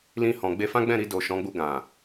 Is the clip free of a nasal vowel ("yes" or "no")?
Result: no